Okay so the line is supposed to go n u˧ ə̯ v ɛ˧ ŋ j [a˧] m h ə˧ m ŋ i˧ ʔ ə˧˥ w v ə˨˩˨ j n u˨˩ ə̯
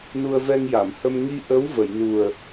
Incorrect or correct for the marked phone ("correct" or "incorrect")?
incorrect